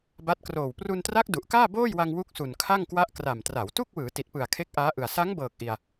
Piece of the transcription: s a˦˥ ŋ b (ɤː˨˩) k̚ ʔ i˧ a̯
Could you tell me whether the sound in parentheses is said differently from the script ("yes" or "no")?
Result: no